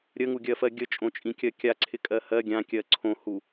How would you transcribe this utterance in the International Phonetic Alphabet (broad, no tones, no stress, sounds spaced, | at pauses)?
ɾʲ ə ŋ u ɡʲ ɜ f ɜ ɡʲ ə t͡ʃʼ õ t͡ʃʼ ĩ kʲ ɜ kʲ a ǀʰ ɪ kʼ ɜ h ɜ ɡʲ ã kʲ ɜ ǀʰ õ h u